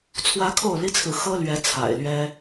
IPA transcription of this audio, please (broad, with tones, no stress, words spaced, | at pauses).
t͡sʰwä˦kʰo˥˨ʊ̯li˦t͡sʰɹ̩˨ xɤ˦lɥɛ˨˦ t͡sʰa̰˨˩ɪ̯lɥɛ˦